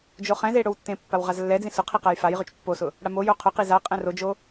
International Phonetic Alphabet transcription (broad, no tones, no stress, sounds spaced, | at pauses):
d͡ʒ o χ ɛ̃ z e ɽ o w tː ẽ pː a w ʁ a z lː ɛ d͡z ĩ s ʊ qʰ i q a j f a j ʁ ʏ t͡ʃ pː o s ʊ | ɽ a m o j o qʰ ʊ q i z a qʼ ɛ̃ r o d͡ʒ o